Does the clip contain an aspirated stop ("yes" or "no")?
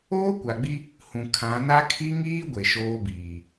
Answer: yes